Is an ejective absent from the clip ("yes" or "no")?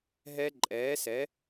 no